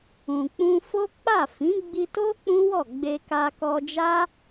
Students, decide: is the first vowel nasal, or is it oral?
nasal